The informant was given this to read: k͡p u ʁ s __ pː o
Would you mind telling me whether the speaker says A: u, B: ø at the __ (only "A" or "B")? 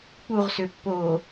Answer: B